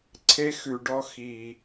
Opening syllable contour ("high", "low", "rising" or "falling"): high